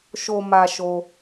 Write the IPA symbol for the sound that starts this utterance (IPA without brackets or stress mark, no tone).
ʃ